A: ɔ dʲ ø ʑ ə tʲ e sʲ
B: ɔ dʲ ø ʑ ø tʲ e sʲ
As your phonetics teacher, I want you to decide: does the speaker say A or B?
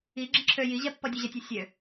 A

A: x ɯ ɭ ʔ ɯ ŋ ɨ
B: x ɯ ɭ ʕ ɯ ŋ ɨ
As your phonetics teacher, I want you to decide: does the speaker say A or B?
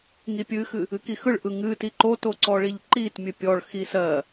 A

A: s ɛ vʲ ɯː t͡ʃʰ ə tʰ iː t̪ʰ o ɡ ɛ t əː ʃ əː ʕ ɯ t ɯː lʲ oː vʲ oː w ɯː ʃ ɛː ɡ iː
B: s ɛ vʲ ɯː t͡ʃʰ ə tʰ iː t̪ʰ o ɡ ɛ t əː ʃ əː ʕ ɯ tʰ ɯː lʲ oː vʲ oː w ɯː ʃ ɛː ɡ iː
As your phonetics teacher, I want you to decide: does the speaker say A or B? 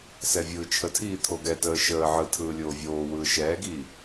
B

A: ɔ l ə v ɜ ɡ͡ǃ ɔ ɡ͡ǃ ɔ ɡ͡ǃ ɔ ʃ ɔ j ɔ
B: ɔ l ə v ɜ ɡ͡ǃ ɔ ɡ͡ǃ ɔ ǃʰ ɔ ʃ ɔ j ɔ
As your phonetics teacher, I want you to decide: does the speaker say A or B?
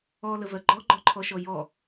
B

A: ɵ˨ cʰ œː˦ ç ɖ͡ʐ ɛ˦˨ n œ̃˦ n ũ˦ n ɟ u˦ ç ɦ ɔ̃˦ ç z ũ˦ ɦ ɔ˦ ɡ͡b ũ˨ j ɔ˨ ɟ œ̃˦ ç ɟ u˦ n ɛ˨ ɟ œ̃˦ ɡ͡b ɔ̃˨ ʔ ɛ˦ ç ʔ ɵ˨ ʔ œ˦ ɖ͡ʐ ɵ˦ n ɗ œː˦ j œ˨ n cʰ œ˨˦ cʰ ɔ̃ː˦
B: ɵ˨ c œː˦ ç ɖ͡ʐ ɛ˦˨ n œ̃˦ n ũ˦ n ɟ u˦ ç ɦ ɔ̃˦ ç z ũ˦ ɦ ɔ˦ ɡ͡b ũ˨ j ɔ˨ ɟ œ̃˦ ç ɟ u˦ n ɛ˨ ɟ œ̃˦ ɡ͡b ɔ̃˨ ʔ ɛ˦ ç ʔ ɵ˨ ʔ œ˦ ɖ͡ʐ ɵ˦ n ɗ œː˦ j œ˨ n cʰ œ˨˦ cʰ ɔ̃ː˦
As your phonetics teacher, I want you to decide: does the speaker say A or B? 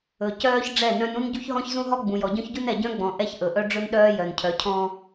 B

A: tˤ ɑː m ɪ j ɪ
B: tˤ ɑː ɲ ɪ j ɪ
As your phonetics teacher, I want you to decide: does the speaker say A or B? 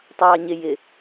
B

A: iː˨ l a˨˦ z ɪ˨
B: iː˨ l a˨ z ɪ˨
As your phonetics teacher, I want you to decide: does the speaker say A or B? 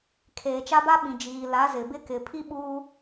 A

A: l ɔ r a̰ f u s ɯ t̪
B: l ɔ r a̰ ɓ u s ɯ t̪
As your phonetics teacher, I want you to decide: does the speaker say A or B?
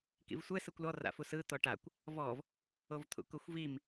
A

